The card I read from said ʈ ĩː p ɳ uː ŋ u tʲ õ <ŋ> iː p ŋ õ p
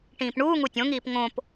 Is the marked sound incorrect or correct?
correct